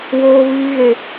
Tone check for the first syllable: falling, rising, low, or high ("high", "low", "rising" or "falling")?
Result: high